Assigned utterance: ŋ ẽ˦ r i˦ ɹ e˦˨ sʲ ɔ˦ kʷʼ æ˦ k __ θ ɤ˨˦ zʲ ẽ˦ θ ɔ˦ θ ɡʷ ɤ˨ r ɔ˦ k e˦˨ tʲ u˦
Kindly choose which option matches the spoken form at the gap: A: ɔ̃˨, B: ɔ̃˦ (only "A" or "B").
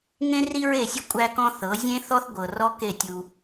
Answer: B